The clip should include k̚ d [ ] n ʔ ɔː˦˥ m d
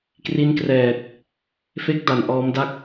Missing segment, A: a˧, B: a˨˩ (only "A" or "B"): B